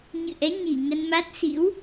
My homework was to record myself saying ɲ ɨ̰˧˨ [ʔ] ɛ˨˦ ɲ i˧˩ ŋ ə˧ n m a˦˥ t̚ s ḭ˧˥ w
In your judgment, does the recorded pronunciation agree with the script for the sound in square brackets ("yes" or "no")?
yes